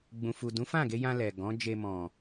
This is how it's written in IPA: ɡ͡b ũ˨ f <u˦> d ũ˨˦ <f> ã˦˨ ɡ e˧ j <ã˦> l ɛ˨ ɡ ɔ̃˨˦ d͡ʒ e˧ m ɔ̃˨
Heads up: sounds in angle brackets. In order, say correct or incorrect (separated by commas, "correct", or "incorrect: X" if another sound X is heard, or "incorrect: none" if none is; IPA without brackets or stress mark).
incorrect: u˨, correct, incorrect: ã˧